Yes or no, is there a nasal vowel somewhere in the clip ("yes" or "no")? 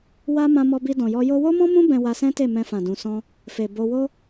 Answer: yes